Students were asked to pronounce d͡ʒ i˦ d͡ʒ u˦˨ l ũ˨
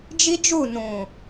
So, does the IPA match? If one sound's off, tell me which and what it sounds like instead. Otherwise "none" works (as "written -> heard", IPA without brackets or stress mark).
l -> n